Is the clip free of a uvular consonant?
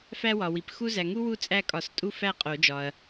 no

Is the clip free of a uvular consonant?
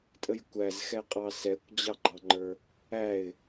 no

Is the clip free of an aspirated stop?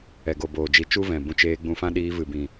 yes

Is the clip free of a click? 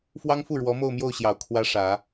yes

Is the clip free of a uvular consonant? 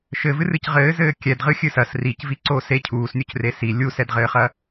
no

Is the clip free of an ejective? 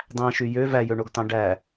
yes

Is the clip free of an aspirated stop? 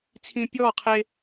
no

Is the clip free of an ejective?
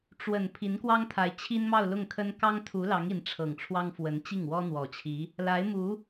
yes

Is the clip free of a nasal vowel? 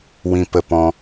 no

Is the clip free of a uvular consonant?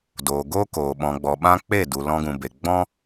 yes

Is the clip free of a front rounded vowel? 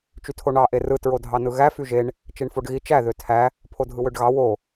no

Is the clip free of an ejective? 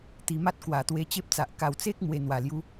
yes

